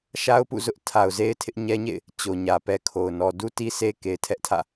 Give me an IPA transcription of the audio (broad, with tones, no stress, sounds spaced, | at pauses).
ʃ a˦ ʊ̯ p ṵ˦˨ z ʊ˦ ʔ tʰ a˨ ʊ̯ z e˦ ɪ̯ tʰ ɪ˦ ʔ ɲ ɛ˦ ɲ ḛ˦˨ ɪ̯ | t͡ɕ o˨ ɲ ä˨ p ɛ˦ kʰ o˨ ʊ̯ n ɔ˨ d u˦ t i˦ sʰ e˦ k e˨ ɪ̯ tʰ ɛ˦ ʔ tʰ ä̰˦˨